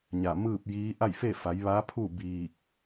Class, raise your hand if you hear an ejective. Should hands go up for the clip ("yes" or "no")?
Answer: no